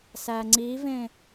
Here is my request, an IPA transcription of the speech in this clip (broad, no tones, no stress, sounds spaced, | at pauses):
s æ ŋ͡ǀ i v ẽ